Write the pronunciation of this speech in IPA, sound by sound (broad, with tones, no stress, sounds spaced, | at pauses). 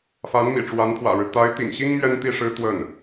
f a˧˥ n m ḭ˨˩ ʈ͡ʂ w a˧˥ n pʰ w ä̰˨˩ ɻ ɻ̩˦ t̪ a˧˥ ɪ̯ t̪ ḭ˨˩ ŋ ɕ i˥ ŋ m ɥ ɛ˥ n t̪ i˥˩ ʂ ɻ̩˥ t̪ w ə˥˩ n